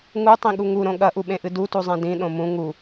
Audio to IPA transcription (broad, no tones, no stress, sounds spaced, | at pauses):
ŋ u tˤ ĩ ɠ u ŋ u ɾ õ ɠ ɐ ʔ u ɓ ẽ ʔ ɨ d u t u zˤ ẽ d ĩ ɗ õ m ũ ŋ u